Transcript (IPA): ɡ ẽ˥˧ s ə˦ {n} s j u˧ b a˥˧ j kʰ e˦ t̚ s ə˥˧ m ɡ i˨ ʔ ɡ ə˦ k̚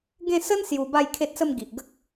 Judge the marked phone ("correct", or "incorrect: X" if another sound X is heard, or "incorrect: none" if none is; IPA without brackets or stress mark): correct